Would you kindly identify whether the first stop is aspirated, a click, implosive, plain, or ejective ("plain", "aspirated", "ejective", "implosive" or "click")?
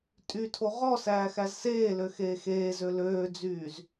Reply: ejective